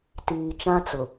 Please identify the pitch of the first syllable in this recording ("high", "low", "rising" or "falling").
low